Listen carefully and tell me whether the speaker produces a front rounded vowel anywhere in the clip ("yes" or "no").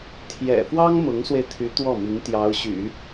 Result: yes